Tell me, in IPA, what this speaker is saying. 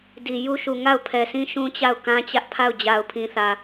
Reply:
di˨ ju˦ʃu˨ ŋa˦˨ʊ̯ pʰɛ˨sĩ˦ ʃũ˦t͡ɕa˦˨ʊ̯ kã˦t͡ɕä˦ʔpʰa˦˨ʊ̯ d͡ʑa˨ʊ̯pʰĩ˨θä˨

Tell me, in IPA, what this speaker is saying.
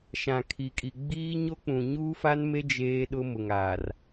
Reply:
ʃã˨kʰi˨kʼi˨ ɡ͡biː˦ɲo˦k͡pũ˨ ɲuː˦fa˦nme˦ d͡ʒeː˦ɗʊ˦mʊ˨ŋa˨r

